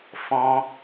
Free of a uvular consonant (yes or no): yes